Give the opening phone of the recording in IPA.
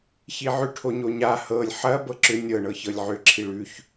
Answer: ç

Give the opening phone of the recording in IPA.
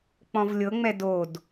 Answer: k͡p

